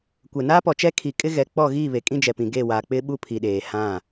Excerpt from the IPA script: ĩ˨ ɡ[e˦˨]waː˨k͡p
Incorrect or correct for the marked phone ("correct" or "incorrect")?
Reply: correct